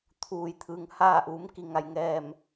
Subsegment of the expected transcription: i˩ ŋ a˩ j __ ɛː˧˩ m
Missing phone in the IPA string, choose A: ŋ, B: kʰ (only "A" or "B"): A